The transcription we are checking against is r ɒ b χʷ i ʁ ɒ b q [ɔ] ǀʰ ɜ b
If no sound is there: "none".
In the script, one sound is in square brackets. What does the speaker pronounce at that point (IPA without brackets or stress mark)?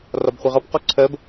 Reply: ɔ